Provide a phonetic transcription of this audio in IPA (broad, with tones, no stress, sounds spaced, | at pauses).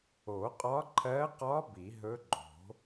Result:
o˨˩˦ qʼ ɒ˧˥ ǃʰ ɜ˧˥ q ɒ˧˥ b i˨˩˦ ɦ ɵ˧˥ ɡ͡ǃ o̤˨˩˦